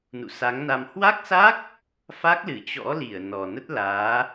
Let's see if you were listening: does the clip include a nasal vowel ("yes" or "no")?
no